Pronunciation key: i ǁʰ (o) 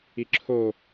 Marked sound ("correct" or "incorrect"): correct